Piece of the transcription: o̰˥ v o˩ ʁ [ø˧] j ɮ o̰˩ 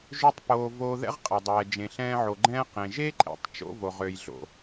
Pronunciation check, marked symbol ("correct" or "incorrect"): incorrect